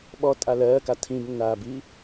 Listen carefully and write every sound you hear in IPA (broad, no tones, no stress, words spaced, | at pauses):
ɓɔ tʼalɜːka tʰĩbnːaːbi